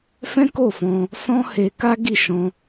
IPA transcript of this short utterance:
f ɛ̃˦ k o˦˨ f ɔ̃˧ | s ɔ̃˦ h e˧ k a˦ ɡ i˦˨ ʃ ɔ̃˧

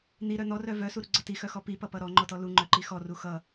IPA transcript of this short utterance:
n̪ i ɾ œ n̪ ɔ r œ v œ s u ɾ u ɡ͡ǀ ʌ t i x œ x ɔ p i p ʌ p ʌ ɾ ɔ ŋ͡ǃ ɔ t ɔ l u ŋ͡ǃ œ ǃ i x ɔ r u x ʌ

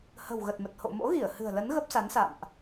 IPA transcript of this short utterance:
h ə̤˨˩ w ɣ ə˨˩ t̚ m ə˨˩ t̚ h o̰˧˨ m o̰˧˥ ɣ i˧˩ ə̯ h ɨ̤˨˩ ə̯ l ə˨˦ n ɣ ə˦˥ p̚ s a˨˦ n s a̰˧˨ m ʔ

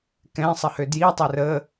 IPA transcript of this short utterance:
k ɛ̃ sˤ ə h ø d j i tˤ ø r ə

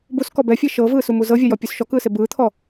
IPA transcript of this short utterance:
b u s k ɔ b ɛ fʲ e ʃ ɤ v ɯː s u m u z ɤ vʲ a j ɔ pʲ u s ʃ ɔ k ɯː s e b ɯː t̪ʰ ɔ

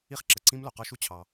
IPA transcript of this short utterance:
i˦ χ ǁ ə˨ ǀ ĩ˦ m l o˨ q ɒ˦ ʃ u˦ t͡ɕʰ ɑ˧

